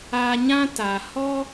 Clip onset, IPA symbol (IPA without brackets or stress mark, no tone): a